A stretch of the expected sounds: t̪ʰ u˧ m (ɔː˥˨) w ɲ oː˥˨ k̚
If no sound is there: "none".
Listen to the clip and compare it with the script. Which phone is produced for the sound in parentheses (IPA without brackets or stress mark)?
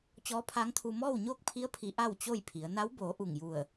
ɔː˥˨